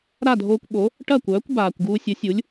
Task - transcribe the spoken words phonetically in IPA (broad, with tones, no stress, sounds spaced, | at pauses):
ɾ a˥˩ dʱ oː˧ kʷ ɓ o˩˥ | ʈ ɐ˥˩ kʷ œː˩˥ kʷ b aː˩ kʷ ɡ uː˧ sʲ ə˩˥ sʲ u˩˥ lʲ